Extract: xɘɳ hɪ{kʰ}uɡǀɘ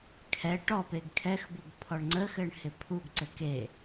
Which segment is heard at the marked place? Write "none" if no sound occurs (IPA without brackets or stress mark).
pʰ